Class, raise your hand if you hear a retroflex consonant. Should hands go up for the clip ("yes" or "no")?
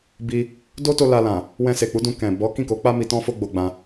no